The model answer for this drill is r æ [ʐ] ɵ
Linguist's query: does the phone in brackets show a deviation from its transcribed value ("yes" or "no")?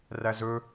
yes